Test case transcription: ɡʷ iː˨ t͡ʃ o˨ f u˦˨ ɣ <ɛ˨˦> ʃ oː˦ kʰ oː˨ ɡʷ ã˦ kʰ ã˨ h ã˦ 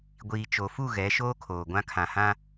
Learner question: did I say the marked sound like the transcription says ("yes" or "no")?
yes